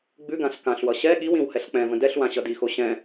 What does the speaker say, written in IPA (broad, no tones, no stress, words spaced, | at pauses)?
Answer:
ɡ͡bʉɡãɬ kãɬwʌ ɕɛ ɠiwĩw hɛɬk͡pɛ̃və̃ dɛɬwã ɕʌdixo ɕɛ̃